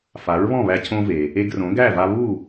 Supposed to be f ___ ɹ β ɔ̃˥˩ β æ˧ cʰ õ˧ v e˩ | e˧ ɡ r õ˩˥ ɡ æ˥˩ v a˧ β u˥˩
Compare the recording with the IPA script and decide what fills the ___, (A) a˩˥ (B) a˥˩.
A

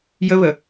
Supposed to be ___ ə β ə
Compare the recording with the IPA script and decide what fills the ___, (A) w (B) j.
B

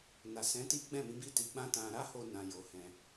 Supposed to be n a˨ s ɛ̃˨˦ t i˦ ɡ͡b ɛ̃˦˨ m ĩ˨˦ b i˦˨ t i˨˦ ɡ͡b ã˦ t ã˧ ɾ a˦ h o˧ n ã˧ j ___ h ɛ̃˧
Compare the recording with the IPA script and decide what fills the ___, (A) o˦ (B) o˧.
B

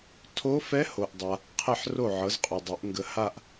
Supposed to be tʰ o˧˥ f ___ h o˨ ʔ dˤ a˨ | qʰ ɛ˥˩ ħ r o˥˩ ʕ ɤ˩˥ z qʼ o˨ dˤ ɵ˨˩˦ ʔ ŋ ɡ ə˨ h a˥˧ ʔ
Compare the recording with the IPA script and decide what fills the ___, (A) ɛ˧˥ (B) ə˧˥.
A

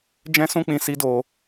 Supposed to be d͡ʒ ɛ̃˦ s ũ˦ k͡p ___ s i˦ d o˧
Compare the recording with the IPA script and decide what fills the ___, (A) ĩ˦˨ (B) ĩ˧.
B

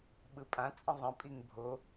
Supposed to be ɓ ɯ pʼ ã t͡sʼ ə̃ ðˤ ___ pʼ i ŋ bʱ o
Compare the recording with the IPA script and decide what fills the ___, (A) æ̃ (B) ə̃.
B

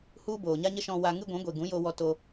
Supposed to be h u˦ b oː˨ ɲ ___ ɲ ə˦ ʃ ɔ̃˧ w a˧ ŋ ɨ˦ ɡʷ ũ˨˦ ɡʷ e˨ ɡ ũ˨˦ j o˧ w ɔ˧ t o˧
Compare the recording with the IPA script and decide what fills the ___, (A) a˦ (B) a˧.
A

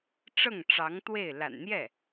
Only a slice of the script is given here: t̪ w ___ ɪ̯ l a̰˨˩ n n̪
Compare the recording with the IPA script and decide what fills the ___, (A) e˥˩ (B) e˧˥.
A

